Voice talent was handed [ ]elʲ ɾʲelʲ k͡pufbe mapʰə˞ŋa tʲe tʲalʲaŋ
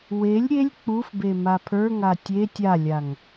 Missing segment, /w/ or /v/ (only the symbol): w